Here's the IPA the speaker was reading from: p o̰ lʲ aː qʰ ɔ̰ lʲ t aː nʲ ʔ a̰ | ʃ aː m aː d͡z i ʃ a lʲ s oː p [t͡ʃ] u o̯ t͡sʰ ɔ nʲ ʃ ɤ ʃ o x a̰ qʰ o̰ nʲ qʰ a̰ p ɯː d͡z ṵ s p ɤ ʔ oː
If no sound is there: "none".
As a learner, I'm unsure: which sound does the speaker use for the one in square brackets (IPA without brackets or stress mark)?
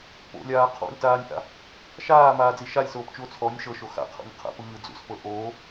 t͡ʃ